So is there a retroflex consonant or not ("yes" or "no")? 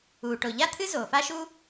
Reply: yes